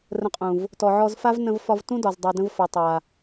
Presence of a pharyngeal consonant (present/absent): present